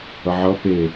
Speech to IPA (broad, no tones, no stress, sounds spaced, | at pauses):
ʌ ʕ ʌ p e